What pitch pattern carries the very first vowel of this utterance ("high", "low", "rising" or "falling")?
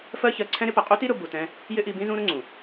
high